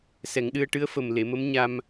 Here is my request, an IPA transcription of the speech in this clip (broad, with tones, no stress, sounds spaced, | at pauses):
s ɛ˨˩˦ ŋ ɗ ɨ˧ ə̯ ʈ ɨ˧˥ ə̯ f ə˨˩ m l e˨˩˨ m ə˧˥ m ɲ a˧ m